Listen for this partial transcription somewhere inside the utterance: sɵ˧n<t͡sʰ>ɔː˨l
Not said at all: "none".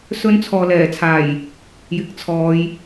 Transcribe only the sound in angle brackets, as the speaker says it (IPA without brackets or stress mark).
t͡sʰ